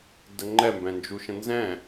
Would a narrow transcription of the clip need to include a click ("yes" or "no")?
yes